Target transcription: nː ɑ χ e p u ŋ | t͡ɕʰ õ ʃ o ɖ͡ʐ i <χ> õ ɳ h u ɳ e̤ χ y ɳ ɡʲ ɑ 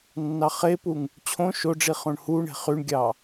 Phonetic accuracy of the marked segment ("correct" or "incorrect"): correct